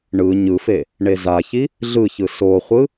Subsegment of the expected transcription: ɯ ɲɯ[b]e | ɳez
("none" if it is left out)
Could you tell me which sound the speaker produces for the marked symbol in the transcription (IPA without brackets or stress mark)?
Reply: f